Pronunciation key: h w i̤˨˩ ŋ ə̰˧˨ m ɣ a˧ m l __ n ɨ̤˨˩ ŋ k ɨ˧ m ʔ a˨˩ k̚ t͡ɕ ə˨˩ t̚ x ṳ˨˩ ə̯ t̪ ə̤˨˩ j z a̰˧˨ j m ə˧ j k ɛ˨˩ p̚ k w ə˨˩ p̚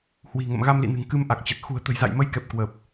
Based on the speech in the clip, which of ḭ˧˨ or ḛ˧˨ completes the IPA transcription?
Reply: ḭ˧˨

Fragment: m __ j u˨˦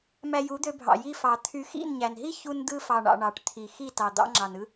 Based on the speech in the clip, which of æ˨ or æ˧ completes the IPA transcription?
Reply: æ˧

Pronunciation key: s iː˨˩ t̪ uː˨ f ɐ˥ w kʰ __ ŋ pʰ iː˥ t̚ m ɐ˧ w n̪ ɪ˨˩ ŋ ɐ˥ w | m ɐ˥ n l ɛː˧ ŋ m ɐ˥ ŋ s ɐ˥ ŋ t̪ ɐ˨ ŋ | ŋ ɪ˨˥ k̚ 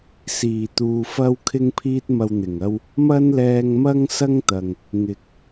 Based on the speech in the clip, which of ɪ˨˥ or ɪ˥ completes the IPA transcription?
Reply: ɪ˥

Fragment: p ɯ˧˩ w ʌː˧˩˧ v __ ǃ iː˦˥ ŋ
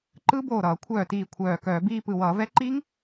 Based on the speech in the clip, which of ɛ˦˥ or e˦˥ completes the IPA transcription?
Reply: ɛ˦˥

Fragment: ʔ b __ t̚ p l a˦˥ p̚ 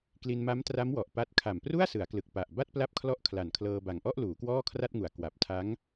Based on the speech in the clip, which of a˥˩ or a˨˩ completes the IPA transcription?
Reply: a˥˩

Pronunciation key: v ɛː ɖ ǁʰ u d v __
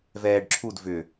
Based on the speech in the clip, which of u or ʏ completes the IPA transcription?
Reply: ʏ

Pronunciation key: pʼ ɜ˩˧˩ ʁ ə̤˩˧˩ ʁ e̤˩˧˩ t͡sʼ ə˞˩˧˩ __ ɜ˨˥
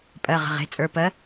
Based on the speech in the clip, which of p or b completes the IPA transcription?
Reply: p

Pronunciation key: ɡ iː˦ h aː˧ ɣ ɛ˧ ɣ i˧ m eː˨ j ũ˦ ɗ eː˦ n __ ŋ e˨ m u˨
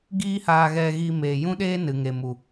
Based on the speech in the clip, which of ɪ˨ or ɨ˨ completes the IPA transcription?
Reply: ɨ˨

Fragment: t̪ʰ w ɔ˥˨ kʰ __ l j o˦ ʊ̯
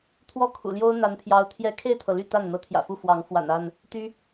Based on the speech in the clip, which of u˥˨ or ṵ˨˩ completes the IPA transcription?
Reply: ṵ˨˩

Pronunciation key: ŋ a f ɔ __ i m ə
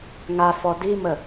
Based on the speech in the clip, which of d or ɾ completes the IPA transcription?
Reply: d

